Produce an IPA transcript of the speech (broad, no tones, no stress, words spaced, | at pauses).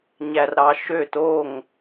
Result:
ɲærɾɑʃøt oŋ